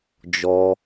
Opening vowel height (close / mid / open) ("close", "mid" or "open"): mid